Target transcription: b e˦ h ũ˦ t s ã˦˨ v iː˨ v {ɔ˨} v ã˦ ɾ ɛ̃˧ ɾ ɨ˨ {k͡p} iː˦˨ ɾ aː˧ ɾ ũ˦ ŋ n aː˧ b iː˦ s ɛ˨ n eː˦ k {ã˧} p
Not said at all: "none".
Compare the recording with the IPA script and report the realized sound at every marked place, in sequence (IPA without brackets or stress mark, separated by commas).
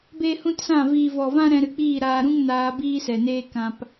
ɔ˨, k͡p, ã˧